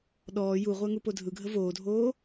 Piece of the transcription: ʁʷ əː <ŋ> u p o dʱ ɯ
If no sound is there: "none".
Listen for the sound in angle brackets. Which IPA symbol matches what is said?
ŋ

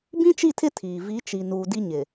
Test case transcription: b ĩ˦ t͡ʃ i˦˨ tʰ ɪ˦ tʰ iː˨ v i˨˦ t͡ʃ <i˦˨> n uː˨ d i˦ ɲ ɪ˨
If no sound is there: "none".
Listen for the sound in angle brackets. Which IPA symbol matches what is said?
i˨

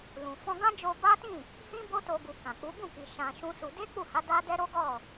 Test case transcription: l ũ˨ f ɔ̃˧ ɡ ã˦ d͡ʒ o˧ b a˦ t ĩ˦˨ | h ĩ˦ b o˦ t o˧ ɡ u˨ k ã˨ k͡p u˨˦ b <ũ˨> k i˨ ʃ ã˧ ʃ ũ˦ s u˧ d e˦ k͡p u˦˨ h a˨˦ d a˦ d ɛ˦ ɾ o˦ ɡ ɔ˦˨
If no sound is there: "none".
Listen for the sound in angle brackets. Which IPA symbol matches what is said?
ũ˦˨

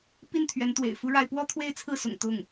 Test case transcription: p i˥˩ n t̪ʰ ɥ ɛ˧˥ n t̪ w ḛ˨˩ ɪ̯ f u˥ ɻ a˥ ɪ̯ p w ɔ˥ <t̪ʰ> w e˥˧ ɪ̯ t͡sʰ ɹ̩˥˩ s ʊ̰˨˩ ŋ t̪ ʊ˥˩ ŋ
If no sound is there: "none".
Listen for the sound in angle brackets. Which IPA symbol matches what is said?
t̪ʰ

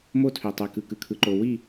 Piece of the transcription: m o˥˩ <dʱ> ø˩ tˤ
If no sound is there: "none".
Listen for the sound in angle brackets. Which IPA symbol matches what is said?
tʰ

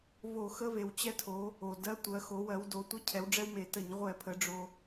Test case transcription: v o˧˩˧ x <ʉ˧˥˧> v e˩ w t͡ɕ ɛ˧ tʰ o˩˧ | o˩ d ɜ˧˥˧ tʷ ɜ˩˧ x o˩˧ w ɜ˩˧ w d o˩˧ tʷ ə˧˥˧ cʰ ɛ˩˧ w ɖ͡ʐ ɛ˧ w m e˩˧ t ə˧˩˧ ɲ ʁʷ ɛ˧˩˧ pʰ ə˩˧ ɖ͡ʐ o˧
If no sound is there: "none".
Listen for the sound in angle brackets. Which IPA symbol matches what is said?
ə˧˥˧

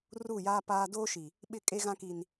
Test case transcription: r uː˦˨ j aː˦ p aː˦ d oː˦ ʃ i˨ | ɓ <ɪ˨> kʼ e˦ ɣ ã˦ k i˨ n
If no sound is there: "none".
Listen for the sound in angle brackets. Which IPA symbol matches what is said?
ɪ˦˨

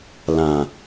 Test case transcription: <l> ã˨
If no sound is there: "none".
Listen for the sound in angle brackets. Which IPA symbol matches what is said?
l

